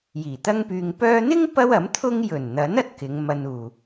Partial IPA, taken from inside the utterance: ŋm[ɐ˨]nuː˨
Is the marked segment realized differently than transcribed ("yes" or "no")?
yes